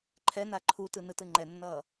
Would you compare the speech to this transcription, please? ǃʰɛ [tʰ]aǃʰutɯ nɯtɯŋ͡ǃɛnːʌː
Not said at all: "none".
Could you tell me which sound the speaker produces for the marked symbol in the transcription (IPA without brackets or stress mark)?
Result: n